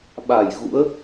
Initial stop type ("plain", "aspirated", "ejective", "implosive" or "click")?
implosive